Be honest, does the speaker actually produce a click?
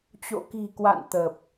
no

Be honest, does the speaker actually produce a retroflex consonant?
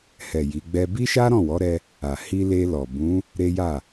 no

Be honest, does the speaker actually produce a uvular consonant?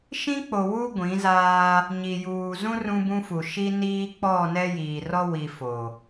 no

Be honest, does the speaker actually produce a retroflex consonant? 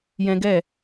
no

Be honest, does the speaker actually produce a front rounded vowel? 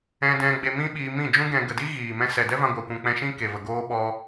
no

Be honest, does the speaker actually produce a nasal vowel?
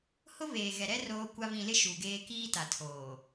yes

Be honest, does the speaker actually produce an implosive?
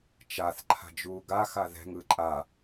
no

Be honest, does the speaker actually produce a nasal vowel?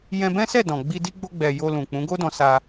yes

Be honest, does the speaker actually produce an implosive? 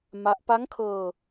no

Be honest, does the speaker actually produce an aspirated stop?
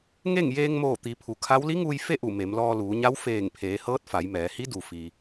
yes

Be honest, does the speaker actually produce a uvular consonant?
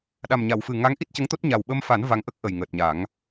no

